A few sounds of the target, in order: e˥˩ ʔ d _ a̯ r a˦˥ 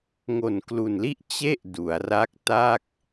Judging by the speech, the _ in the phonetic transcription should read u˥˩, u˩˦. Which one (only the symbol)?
u˩˦